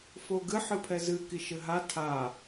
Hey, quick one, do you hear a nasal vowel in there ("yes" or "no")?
no